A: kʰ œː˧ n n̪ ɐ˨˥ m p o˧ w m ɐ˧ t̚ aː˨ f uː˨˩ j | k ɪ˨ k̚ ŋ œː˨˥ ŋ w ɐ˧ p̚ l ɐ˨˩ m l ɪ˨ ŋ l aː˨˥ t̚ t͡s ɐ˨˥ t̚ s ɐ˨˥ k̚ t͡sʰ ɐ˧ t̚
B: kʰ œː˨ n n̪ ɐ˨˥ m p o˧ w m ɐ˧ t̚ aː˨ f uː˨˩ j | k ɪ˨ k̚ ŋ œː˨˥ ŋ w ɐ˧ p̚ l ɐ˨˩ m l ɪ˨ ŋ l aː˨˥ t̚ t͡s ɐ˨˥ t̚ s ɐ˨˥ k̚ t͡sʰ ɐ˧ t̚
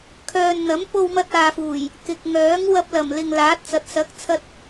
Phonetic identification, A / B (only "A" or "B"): B